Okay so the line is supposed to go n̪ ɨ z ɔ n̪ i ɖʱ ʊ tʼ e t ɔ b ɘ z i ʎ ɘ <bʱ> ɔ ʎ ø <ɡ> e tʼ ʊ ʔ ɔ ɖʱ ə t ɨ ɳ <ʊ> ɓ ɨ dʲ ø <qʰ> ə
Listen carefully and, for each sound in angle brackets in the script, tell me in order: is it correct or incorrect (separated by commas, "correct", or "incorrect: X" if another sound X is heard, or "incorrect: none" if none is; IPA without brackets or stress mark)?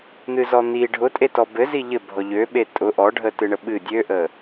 correct, incorrect: ɓ, incorrect: ə, incorrect: ʔ